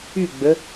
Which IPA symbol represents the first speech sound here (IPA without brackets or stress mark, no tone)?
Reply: y